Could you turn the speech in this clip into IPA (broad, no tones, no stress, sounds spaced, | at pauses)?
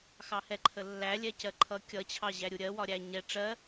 x ɑ h ɛ ǃʰ ə lː æ lʲ ɛ c ɜ ǃʰ ʌ kʲ ʌ t͡ɕʰ ɑ ʑ æ ɾʲ u ɾʲ ɜ w ɒ ɾʲ æ ɲ ɛ ʈ͡ʂ ɜ